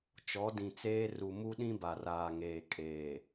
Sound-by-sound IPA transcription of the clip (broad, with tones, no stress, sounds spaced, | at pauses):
t͡ʃ ɔ˨˦ d ĩ˨ t͡s eː˦ r u˨ m u˦ ɗ ĩ˦ b a˨ r aː˨ ŋ eː˨ kʼ eː˨